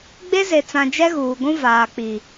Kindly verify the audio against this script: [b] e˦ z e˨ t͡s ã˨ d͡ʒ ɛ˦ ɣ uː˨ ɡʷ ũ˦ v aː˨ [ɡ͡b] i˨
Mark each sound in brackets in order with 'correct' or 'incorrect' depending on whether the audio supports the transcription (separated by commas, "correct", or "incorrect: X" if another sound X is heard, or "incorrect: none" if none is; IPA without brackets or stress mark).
incorrect: ɡ͡b, incorrect: k͡p